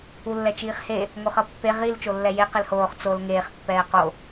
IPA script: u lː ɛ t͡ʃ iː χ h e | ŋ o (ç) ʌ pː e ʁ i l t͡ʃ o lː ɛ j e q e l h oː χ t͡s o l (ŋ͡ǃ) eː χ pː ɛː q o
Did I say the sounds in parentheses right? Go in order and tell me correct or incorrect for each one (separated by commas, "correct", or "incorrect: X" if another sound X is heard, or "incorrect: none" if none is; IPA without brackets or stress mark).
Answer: incorrect: χ, incorrect: ŋ